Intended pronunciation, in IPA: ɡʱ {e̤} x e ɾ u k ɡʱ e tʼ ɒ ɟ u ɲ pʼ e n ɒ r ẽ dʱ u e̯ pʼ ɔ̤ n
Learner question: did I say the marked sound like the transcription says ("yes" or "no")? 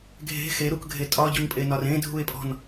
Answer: yes